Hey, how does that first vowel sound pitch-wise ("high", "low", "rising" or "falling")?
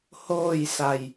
falling